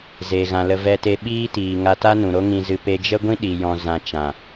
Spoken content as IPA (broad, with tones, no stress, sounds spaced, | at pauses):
z e˨ ɣ ã˨ l ə˧ v ɛ˧ t e˧ ɓ iː˦ t iː˨ ŋ a˧ t a˦ n ũ˨ ɾ o˦ ŋ ĩ˧ z ɨ˧ p e˧ d͡ʒ ə˦ ɡʷ ĩ˦ ɗ i˨ j ɔ̃˧ z ã˧ t͡ʃ ã˨